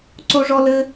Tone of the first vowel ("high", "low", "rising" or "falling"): high